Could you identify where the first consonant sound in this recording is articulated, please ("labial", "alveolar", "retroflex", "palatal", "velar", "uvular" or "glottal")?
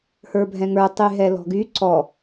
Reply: glottal